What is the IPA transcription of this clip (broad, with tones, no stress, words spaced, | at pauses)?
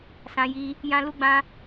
sã˧ji˧ | jã˦lu˦ɡ͡bã˦